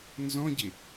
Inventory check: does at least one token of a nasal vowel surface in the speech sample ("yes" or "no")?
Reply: yes